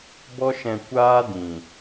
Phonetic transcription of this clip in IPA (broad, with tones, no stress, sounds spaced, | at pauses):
b ɔ˦ ʃ ɛ̃˧ kʷ aː˦ d ĩ˨